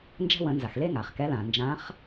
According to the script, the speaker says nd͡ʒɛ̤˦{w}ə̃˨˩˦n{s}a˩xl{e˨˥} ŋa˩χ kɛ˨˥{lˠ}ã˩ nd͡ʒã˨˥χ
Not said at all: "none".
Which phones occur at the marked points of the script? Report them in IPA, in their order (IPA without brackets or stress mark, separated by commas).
w, z, e˦, l